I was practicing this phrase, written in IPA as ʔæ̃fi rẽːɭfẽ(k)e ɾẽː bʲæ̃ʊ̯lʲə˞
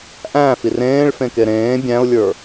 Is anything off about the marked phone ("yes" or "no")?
no